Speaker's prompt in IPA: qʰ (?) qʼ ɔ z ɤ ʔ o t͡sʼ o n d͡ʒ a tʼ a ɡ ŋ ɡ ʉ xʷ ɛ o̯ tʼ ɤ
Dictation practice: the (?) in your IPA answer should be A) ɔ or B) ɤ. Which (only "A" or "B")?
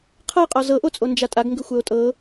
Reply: B